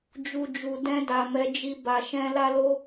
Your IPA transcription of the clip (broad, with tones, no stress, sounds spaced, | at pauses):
d͡ʒ u˨ d͡ʒ u˨ d ɛ̃˧ d a˨ m ɛ˨˦ d͡ʒ i˧ b a˨ ʃ ɛ̃˧ l a˧ l o˧